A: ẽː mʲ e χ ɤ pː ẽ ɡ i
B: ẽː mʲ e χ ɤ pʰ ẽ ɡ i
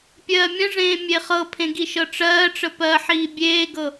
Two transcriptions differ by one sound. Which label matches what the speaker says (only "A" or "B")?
B